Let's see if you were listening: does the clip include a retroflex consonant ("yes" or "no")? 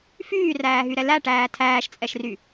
yes